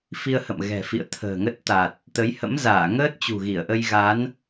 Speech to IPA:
f i˧ ə̯ h ə̰˧˨ m ɣ ɛ̤˨˩ f ḭ˧˨ ə̯ t̪ʰ ə̤ː˨˩ ŋ ə˦˥ t̚ t̪ a˨˩ t̚ | t̪ ə˨˦ j h ə̰˧˥ m z aː˧˩ ŋ əː˦˥ t̚ t͡ɕ ṳ˨˩ ɣ i˧˩ ə̯ ʔ ə˧ j ɣ a˨˦ n

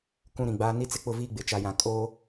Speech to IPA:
k ũ˦ ɾ ĩ˨ ɡ͡b aː˦ n i˦ t͡s ɪ˦ k͡p ʊ˦˨ v iː˦ ɡ͡b ɪ˨ t͡ʃ a˨ j ã˨ kʼ oː˦

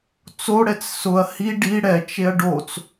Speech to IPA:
t͡s o ɽ ɛ t͡s s ʊ ɐ̯ h i ɖ i ɽ ɛ t͡ʃ e ɐ̯ ɖ o t͡s

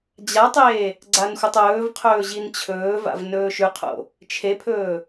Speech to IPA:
d͡ʑ a tˤ eː | ɡ͡ǀ a n xʷ ɨ tˤ ɵː v qʰ ɵː ʑ i n t͡ɕʰ ɵː v a̰ v n ɵː ʃ ʉ qʰ o̰ | t͡ʃʰ e pʰ ɵː

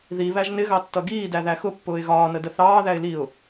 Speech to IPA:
ð i β æ ʒ n ɪ ɣ ɑ tː ʌ ɡ iː d æ ð æ x ʊ pː ʊː ɪ̯ ɣ ɒː n ə d ə θ ɑː ð æ ɪ̯ l i ʊ̯

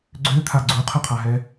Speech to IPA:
ɡ͡ǀ ø t̪ʰ a ɡ͡ǀ u qʰ ə qʰ a ɦ ɛ

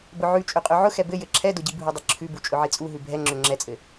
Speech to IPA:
b ʊ ʕ ʉ t͡ʃʼ ø qʼ ø ʕ ʊ x ɛ b ɘ j ɘ ǁʰ ɛ d ʊ ɟ i bʱ u dˤ ɘ ǁʰ ʉ b u t͡ʃʼ ʊ ʕ i t͡sʼ u ɦ ʉ bʱ ɛ ŋ͡ǁ ø ŋ͡ǁ ɛ t͡sʼ ɘ

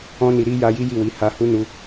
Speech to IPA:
ɔ̃˧ n i˨ ɾ i˧ j a˧ j i˦ j i˦˨ w i˨˦ h a˧ h u˦ n u˧

